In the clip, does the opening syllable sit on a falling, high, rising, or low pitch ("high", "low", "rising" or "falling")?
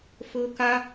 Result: high